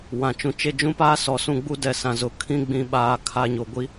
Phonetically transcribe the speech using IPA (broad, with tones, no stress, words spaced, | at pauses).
wã˨t͡ʃũ˨t͡ʃe˦ d͡ʒũ˦paː˦sɔ˨ sũ˦˨ɡ͡bu˦dɛ˨ sã˨zʊ˨ kʰĩ˦ɡ͡bĩ˨ ɓaː˨kʰa˨ ɲo˨ɡʷi˦